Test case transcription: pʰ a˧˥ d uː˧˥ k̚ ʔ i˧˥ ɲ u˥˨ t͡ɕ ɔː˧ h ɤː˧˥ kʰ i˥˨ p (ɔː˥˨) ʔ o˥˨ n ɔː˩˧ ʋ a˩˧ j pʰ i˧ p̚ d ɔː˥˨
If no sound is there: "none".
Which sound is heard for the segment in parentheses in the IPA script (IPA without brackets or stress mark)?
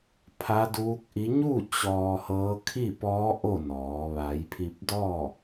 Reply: ɔː˧˥